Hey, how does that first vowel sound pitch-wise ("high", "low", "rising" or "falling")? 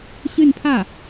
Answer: falling